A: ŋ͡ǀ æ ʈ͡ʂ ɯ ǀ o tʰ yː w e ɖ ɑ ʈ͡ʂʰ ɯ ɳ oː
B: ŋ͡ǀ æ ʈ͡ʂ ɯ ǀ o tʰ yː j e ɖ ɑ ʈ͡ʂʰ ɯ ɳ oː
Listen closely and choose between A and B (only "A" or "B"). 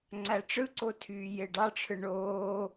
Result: B